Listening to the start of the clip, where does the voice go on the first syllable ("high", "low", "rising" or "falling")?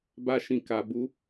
high